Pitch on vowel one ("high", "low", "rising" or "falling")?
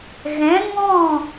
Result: rising